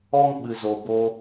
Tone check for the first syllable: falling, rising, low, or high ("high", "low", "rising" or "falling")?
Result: high